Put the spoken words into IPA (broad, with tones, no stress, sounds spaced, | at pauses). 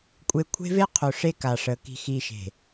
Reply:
kʷʼ e˦ kʷʰ e̤˦ v e˦ qʰ ɵ˨ ʂ e˦ k a˨ ʂ ə˨ k i̤˨ x i˨ ʃ e̤˨